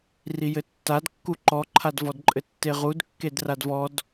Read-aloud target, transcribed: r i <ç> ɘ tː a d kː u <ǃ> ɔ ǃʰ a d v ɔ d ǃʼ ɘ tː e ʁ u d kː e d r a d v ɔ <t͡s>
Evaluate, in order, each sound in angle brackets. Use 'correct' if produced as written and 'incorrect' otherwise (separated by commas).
incorrect, correct, incorrect